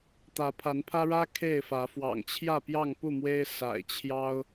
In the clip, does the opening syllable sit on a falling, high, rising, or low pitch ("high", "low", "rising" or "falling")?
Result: rising